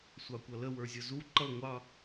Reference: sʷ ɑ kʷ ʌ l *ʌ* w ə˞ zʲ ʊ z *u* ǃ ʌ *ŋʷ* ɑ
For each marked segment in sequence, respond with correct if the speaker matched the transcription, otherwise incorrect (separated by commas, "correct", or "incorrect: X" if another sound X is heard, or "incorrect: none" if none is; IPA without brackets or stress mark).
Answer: incorrect: ə, correct, correct